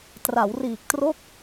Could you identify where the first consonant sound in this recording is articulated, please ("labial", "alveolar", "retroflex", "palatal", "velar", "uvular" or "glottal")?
alveolar